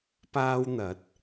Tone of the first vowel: high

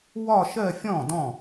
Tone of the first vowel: falling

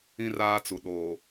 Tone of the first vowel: high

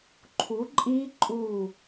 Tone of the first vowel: rising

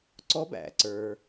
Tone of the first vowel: rising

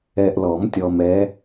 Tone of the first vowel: low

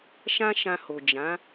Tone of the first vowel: high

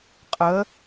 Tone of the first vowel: rising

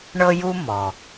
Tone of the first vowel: high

